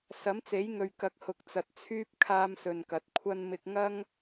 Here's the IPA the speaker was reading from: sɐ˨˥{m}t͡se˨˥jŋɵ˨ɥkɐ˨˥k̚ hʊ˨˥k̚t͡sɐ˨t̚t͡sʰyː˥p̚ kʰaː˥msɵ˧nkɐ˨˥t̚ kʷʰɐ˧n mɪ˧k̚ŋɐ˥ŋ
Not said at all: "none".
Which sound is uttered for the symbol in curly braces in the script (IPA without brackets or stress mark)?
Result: m